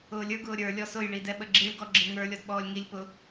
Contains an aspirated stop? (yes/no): no